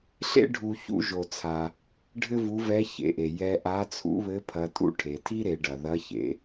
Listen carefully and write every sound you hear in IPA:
ɬ ḛ˥ ɖʱ u˧ ç ṵ˥ ʒ o˧ t͡sʰ a˧ | ɖʱ ɘ˥ v u˧˥ v ɛ˧˥ ç ḛ˩˧ ʔ e˩ j ɛ˧ ʔ a˧˥ t͡sʰ ṵ˧˥ β ɘ˧˥ pʰ ɐ˧˥ tʼ ṵ˥ ʈʰ e˩˧ tʰ i˥ ɾ e˩˧ ɖ ɐ˩ ð ɐ˧˥ ç ḛ˩˧

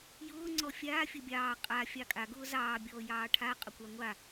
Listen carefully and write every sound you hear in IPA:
j ʊː ŋ͡ǀ ɔ fʲ aː fʲ ə bʲ ɑː qʼ a fʲ ɑ kʼ a ɡ ʊː z ɑː bʲ ɔː j ɑː ʈʰ a qʼ ʊ kʷ a ŋʷ a

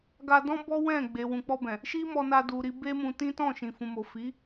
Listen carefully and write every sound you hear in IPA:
ɡ a˧ d ɔ̃˦ b ɔ˦ w ɛ̃˦˨ ɡ͡b e˨ w ũ˨ k͡p ɔ˧ b ɛ̃˨ | ʃ i˦ m ɔ˧ n a˧ d u˧ ɾ i˦ b e˦ m ũ˧ t ĩ˦ t ɔ̃˦˨ ʃ ĩ˨ f ũ˨ m o˨ f i˨˦

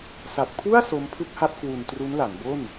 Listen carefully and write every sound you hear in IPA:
s a˨˩ t̚ pʰ u˥˩ a̯ s o˦˥ m pʰ ɯ˥˩ k̚ h a˥˩ t̚ k w u˧ n t r u˦˥ n l a˩˦ n b o˥˩ n

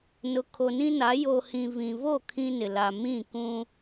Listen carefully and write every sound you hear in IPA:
n ʊ˨ kʰ o˨ n ĩ˦ n a˨˦ j o˨ h ĩ˨ v ĩ˨ v o˦˨ kʰ ĩ˦ n ɪ˨ l a˨ m ĩ˦˨ k ũ˦

